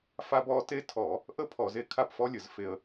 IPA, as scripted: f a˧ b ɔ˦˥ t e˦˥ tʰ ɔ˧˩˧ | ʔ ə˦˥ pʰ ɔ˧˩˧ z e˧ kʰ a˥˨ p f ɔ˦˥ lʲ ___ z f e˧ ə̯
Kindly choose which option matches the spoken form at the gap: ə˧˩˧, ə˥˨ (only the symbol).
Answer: ə˧˩˧